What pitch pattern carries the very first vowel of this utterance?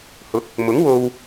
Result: rising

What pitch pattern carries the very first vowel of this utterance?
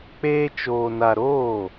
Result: high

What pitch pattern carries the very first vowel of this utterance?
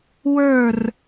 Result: falling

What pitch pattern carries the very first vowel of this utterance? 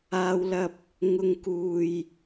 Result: high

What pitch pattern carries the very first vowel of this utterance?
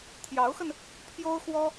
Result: rising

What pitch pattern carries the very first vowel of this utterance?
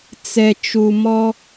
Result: low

